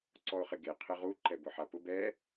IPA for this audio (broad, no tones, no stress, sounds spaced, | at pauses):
ǀ ɔ ʊ̯ χ ɪ ɡ e qʰ ɪ ʁ u ǃ ɛ b ʊ ħ a p ʊ b ɛ